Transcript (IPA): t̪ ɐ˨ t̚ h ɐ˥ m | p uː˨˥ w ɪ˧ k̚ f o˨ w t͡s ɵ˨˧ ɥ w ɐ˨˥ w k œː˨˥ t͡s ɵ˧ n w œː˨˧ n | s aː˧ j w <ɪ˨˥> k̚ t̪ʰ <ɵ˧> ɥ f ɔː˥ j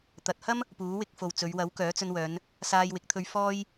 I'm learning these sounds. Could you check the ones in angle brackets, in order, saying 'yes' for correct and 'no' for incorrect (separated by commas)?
yes, yes